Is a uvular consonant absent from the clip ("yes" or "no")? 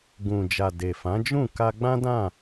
yes